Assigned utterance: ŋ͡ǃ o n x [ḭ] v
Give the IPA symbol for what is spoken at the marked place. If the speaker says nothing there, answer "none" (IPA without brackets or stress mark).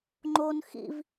ḭ